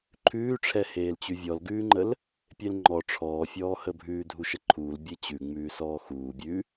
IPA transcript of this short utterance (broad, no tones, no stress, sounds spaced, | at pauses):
ǃʰ ʉː ʈ͡ʂʰ ɛ h eː l t͡ɕ ʉ vʲ ɔ l ɡ ʉː ŋ͡ǃ ə l | pʲ e l ŋ͡ǃ ɔ ʈ͡ʂʰ ɔː fʲ ɔː h ə bʱ ʉː dʱ u ʃ ə ǃʰ uː l bʲ e t͡ɕ ʉ ŋ͡m ʉː s ɔː x uː bʲ ʉ